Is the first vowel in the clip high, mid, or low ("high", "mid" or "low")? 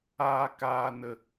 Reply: low